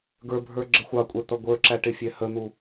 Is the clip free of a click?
no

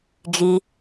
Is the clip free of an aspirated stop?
yes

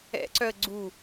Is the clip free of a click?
no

